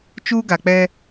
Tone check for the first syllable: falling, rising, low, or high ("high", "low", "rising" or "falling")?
high